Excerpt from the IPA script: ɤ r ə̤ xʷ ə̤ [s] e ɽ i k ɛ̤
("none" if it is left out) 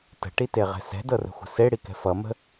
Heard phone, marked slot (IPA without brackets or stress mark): s